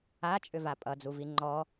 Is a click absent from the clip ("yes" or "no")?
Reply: no